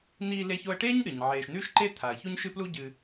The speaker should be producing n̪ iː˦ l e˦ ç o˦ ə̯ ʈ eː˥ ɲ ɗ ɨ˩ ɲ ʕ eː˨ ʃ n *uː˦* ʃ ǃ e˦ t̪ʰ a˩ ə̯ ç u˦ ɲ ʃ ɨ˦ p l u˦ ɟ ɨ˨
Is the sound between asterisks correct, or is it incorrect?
incorrect